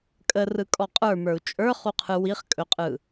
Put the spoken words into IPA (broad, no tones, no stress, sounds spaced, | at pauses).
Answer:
kʼ ə r ɯ kʼ ɔ qʼ ə˞ m ə˞ u̯ t͡ʃʼ ə˞ χ u qʰ ɯ w i χ kʼ ɵ qʼ ɯ